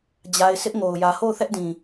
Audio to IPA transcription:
d͡ʑ a˨ ɪ̯ s ɪ˦ ʔ ŋ o˨ ʊ̯ j ä˨ h o˦˨ ʊ̯ θ ɛ˦ ʔ d ĩ˨

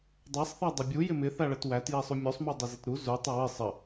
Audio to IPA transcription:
dˤ æ sˤ θ æ dˤ ɪ bʲ u j ɪ m ɪ θ æ ɭ ə t w æ t j ɛ sˤ u mʲ u sˤ m u dˤ ɪ z ɪ t ɾ u z u tˤ ʌ w ɪ sˤ ə

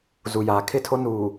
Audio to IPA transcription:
z u˨ j aː˨ kʰ ɪ˦˨ tʰ o˦ n uː˨

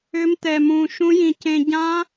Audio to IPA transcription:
ʏ˦˥ m t̪ ɛ˧ m ũ˧ ʃ ũ˦˥ j ĩ˧ c ẽ˧ ɟ ã˦˥

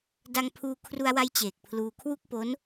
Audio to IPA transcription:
d a˧ ŋ pʰ uː˧ kʰ r u˧ a̯ w a˦˥ j t͡ɕ eː˨˩ k̚ pʰ l uː˧ kʰ w u˥˩ k̚ p o˦˥ n

